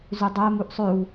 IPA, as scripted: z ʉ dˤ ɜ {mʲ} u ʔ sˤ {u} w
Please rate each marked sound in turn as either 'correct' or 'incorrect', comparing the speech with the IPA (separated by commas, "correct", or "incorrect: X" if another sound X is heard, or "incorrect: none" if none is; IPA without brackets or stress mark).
incorrect: m, incorrect: ʉ